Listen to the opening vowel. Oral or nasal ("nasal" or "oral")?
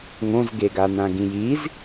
nasal